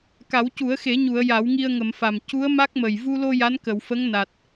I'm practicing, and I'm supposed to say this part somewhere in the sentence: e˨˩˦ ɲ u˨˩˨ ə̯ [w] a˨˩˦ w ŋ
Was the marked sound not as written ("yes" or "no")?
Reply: yes